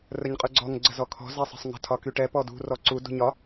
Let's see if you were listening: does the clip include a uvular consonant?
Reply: yes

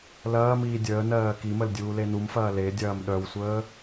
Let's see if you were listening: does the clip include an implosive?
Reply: yes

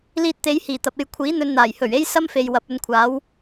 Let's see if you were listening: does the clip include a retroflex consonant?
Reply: no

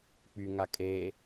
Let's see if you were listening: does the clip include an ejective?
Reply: yes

